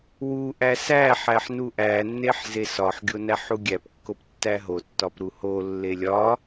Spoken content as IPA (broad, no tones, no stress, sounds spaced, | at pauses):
w u ʔ æ s æ ħ æ ħ n u ʔ æ nː e ħ z e s ɒ ħ ɡʲ o n æ ħ u ɡʲ æ p kː o p tː æ ɦ o tː ɒ p ɾ u h o lː e lʲ ɒ